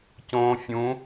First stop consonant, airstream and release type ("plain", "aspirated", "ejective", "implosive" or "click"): plain